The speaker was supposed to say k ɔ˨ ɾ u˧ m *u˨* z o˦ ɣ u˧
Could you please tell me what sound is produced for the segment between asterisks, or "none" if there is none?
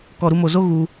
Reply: o˨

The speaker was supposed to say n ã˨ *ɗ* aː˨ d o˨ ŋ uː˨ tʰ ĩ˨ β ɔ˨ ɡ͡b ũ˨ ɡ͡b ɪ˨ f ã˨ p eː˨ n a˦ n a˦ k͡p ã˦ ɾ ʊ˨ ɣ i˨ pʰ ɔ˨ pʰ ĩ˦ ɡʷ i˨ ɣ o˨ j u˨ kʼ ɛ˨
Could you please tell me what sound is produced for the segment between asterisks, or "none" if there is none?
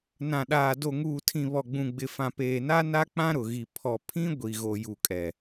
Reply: ɗ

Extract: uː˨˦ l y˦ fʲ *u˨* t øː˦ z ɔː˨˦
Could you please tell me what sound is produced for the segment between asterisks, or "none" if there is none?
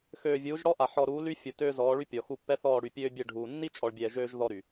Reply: u˨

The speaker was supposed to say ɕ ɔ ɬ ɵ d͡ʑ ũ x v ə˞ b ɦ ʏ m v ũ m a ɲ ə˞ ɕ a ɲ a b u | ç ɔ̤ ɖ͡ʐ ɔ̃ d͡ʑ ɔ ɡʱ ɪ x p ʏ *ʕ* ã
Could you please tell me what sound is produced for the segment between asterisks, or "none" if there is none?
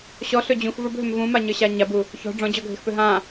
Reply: ɦ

